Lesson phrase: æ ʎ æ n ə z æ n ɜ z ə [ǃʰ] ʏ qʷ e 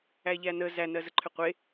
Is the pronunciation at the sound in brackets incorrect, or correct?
correct